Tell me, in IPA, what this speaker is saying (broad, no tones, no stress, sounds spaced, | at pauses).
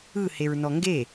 ɯ h e ɹ n ɔ ŋ ɡ e